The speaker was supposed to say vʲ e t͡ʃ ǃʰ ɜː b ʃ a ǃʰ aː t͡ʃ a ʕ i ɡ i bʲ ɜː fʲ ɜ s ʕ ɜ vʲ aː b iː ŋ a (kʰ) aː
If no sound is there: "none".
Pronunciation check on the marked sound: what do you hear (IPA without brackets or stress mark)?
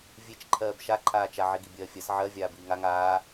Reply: ŋ